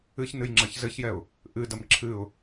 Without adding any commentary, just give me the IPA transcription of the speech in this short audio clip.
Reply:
ɨçnɨjŋ͡ǁɐç zɘçjɛʊ̯ | ʔɨdɐm ǁʰɨʊ̯

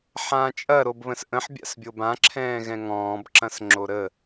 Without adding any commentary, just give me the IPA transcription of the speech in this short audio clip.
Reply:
ħãːt͡ʃʼɐ ɾobβə̃sʔə̃ħ bʲa̰sbʲobã ǁʰɛ̃ːɣɛ̃ŋɔ̃ːb ǁɐ̃sŋ͡ǁoɾə

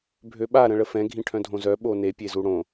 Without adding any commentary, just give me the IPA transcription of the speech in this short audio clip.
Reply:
bʱøɓa ɾə̃ɭəfɛ̃ ɡʱĩʈʰœ̃dʱõzœ ɓone pʲezuɽõ

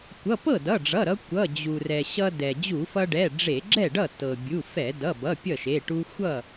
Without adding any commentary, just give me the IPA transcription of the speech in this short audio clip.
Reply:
kʷʌ˩˧˩ pɤ˥˩dʌ˩˧˩ɖ͡ʐʌ˩˧˩ɾʌ˧ kʷʌ˩˧˩d͡ʑu˩rɛ˩ ɕʌ˧ dɛ˩ d͡ʑu˧˩˧fʌ˧ɖɛ˩˧˩ ɖ͡ʐe˧˩˧ɡ͡ǁɛ˥˩ɖʌ˥˩ tɤ˩bʲu˩˧˩ fɛ˧˩˧dʌ˩˧˩bʌ˩˧˩ pʲʌ˥˩ʃe˩˧˩ ʈu˧xʷʌ˥˩

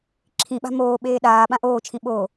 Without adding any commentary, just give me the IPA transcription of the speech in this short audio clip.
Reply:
ǁʰĩɓa̤ moːɓeː ɗaː ɓãʔoːt͡ʃʰĩ ɓo

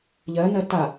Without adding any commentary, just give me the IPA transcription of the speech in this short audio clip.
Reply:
ʎɜnɜ ta

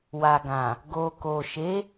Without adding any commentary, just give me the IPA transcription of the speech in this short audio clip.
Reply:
wa˨ɡã˨ | ɡo˨ko˨ ʃe˨˦

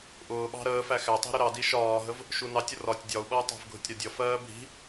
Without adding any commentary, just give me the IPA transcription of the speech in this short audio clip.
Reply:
ʔʊː ɓɑ̤ɾəːfæ xætˤi̤ ɾʊɾɑdi ʃɒːɦəv | ʃunɑtʲ ʊrɒtʲ dʲɒu̯ɓʌu̯ tˤæ̤vɡʱʊtʲɾɒdʲʌ fɜːbʱi̤

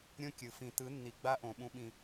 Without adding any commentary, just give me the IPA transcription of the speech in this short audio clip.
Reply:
ɾʲõ˦kʲɯ˨ fĩ˨tɯ˨˦nːi˨ ɡ͡ba˦ʔõ˨ ɓũ˦ɓĩ˦

